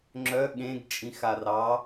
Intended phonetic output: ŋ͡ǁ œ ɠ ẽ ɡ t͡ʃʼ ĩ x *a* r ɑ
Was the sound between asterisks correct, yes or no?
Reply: yes